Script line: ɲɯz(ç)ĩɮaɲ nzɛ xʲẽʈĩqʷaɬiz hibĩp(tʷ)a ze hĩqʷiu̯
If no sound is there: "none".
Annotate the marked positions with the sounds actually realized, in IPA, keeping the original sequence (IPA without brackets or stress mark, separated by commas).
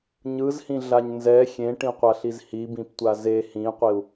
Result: h, tʷ